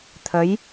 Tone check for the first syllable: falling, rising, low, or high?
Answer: rising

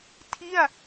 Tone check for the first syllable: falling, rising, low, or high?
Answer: falling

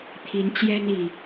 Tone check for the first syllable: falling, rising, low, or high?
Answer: rising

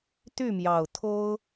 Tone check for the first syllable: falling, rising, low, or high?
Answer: falling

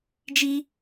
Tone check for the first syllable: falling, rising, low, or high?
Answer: high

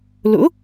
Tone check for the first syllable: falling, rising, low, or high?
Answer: rising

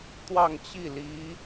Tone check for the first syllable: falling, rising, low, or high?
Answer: falling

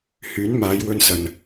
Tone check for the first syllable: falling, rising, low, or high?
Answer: rising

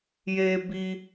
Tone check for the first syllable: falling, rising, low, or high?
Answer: high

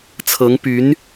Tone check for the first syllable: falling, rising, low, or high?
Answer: rising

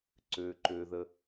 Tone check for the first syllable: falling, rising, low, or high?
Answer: low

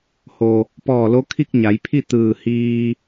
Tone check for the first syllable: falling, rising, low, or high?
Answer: low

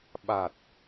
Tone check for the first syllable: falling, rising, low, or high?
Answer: low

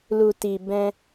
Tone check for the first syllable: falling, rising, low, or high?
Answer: low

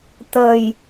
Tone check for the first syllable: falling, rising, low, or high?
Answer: low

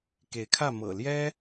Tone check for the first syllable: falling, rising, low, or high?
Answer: rising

